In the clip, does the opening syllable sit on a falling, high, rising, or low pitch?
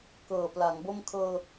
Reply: low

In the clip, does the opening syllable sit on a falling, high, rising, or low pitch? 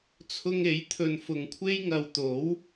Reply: high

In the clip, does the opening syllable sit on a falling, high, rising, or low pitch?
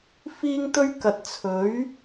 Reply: high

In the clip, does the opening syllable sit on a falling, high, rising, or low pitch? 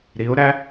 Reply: rising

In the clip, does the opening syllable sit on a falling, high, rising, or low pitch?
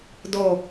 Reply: low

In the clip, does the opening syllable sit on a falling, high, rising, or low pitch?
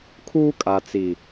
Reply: high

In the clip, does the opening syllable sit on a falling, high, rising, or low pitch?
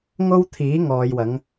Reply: high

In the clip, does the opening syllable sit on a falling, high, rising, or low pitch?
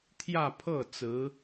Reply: falling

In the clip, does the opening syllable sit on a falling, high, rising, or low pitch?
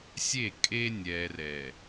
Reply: falling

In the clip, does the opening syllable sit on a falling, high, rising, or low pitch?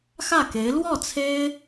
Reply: falling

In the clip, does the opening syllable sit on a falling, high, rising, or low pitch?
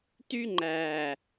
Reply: high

